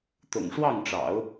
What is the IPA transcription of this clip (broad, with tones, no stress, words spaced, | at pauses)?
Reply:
t̪ʊ̰˨˩ŋʂwɑ˥˩ŋʈ͡ʂɑ̰˨˩˦ʊ̯